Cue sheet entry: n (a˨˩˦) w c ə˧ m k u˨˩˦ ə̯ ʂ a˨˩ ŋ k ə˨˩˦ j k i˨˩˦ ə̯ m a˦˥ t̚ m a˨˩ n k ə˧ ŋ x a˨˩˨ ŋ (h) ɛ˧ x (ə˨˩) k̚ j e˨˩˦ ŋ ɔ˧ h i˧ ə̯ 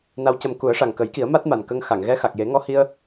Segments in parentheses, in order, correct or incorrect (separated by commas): incorrect, incorrect, incorrect